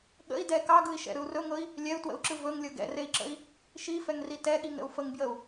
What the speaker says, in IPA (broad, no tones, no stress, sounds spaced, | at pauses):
ɠ ə̰ i̯ d ɛ k ɑ ɡ ɯ i̯ ʃ ɛ̰ ɾ ɯ u̯ r ɵ ŋ ɤ i̯ | lʲ ɛ u̯ t w ə̰ u̯ ǁ ɯ v ɵ ŋ lʲ ɤ ɡ ɛ̰ r e i̯ ǁ ə̰ i̯ | ʃ i f ɛ ŋ r i t ɛ ɠ i ŋ ɾ ə̰ u̯ f ə ŋ b j ə u̯